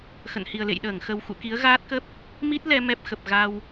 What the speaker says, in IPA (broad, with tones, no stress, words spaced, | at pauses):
xə̰˧˨nhi˨˩ə̯lḛ˧˨jɗəː˧˩ŋ xə˨˩wxṵ˧˨ ki˨˦ə̯ɣaː˦˥t̚kə˦˥p̚ | mi˦˥t̚lɛ˧ mɛ˦˥p̚xə˨˩p̚ɣa˧w